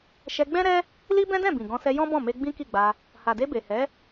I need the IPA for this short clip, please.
ʃ ɛ˧ ɡ͡b ɛ̃˦ ɾ ɛ˦ | l i˦ b ɛ̃˦ d ɛ̃˦˨ b ĩ˨ ɡ ɔ̃˧ s ɛ˧ j ɔ̃˦ b ɔ̃˦˨ m e˧ ɡ͡b ĩ˦ k i˦˨ ɡ͡b a˧ | h a˨ d e˧ b e˨ h ɛ˨˦

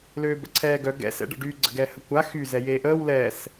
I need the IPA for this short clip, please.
l øː b ə̰ ǀʰ ɛː ɡ œ ɡ ɛ̰ s ɛ̰ ɖ ə̰ ɖ y ɡ͡ǀ ə̰ ɡ ɛː h ə kʷ a x y z ɛ j e ʔ əː w l ɛ s

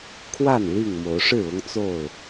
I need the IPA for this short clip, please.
kʰ w a˥˨ n l i˥˨ ŋ m o˨˦ ʊ̯ ʂ ɻ̩˥˨ ʊ˦ ŋ t͡s o˥˨ ʊ̯

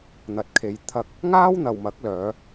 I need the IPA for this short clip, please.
n̪ ɐ˨ t̚ kʰ e˨˧ j t̪ʰ ɐ˧ k̚ | ŋ aː˥ w n̪ ɐ˨ w m ɐ˨˥ k̚ l œː˨˧

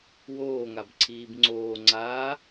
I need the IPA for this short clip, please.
w oː ŋ a b ǀʰ iː b ŋ͡ǀ oː ŋ͡ǀ aː

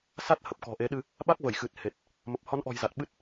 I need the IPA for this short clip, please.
s a˦˥ t̚ h ə˨˩ p̚ k ɔ̤˨˩ ʔ e˨˦ ɗ ɨ˧ | ɓ a˦˥ k̚ v ə˧˩ j x ɨ˨˩ t̚ h e˨˩ t̚ | m ə˨˩ p̚ h ɔ˨˦ n ʔ ɔ̤˨˩ j z a˨˩ t̚ ɓ ɨ˦˥ t̚

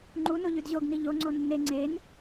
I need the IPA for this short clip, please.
ŋ͡ǃ u n o ʎ ʉ d ʑ o ɡ n i ʎ o ŋ͡ǀ o nː e ŋ͡ǀ e n

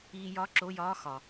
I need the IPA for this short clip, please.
iː˧ j ɒ˧˥˧ ǁ o˧˥˧ j ɒː˧˥˧ x ɒ˩

